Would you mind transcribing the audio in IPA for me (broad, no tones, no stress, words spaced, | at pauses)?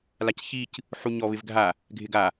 lacçic | ħuɲɔβɪvɡʱa | ɡʱɪɡa